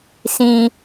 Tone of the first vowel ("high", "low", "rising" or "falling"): high